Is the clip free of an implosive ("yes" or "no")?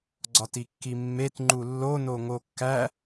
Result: yes